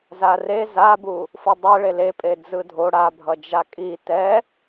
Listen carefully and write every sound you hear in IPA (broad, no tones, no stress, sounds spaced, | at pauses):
z a r e z a b u | f ɯ dˤ ɛ ɭ e l e pʼ e d͡z ɯ dʱ o ɽ a bʱ ʌ d͡ʒ a kʼ i t ɛ